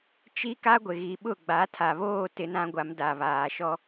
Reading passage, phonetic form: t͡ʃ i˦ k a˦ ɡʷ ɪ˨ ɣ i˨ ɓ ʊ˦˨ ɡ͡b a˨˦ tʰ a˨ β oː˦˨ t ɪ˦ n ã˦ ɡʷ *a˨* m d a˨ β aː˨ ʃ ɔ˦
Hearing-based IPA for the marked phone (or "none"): a˨˦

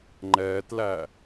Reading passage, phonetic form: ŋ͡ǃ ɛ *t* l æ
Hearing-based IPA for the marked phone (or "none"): t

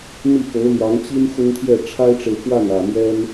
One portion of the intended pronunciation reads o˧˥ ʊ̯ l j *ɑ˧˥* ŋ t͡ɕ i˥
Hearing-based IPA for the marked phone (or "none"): ɑ˧˥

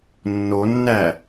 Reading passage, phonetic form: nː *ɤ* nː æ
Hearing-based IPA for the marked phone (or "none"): o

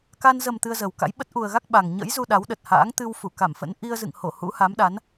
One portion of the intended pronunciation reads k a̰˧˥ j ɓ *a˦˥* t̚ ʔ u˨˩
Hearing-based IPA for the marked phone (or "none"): ə˦˥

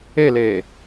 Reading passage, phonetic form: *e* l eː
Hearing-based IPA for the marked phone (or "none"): e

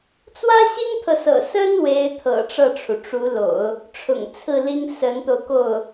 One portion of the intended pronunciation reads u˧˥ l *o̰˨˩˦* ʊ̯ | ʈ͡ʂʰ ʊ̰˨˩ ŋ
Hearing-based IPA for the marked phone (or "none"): o̰˨˩˦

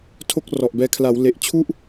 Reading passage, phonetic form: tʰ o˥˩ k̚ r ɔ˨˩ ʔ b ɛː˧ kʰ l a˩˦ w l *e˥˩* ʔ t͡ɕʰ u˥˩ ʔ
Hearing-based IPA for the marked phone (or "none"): e˨˩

